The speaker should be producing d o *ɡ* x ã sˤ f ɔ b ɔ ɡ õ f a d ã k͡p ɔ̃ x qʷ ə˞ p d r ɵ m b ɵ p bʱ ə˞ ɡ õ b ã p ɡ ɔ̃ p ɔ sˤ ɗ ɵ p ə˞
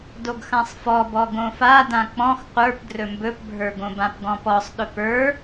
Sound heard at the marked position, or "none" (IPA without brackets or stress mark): ɡ